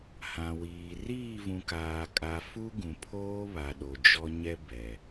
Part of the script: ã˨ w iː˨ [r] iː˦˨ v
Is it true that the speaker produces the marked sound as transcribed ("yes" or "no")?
yes